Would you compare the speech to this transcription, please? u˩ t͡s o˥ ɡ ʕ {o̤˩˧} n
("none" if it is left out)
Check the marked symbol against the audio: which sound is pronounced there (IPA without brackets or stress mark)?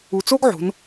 o̤˩˧